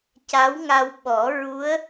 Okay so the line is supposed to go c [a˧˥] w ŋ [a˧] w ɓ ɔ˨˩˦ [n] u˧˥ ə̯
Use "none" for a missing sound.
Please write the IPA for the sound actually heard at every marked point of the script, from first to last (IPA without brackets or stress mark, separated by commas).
a˧˥, a˧, ɹ